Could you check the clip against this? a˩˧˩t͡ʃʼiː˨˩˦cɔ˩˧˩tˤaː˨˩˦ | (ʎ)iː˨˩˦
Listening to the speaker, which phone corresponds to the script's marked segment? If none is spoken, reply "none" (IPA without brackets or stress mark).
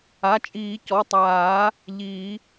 ʎ